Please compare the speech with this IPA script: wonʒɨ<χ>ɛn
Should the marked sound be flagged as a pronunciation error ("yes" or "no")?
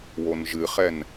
no